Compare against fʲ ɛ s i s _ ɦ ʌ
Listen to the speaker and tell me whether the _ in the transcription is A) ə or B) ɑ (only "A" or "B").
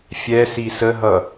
A